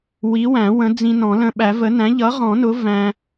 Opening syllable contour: rising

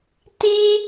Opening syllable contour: high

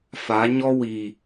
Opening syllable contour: rising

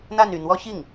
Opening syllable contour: falling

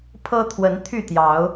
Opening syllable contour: high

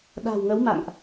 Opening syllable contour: low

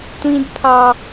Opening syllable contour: high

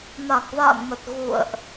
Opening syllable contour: low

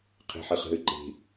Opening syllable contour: low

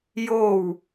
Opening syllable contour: falling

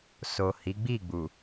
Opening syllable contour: low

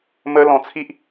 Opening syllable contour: high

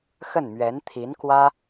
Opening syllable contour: falling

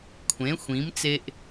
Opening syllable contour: rising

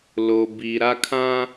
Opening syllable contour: low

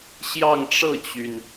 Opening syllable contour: falling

